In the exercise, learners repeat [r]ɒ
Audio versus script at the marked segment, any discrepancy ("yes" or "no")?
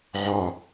yes